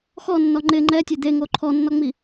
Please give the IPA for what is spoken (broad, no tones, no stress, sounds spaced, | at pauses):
x ɔ nː ɔ ŋ͡ǃ ɪ ŋ͡ǃ ɛ tʲ e d̪ e ŋ o ǃʰ ɔ nː ɔ ŋ͡m i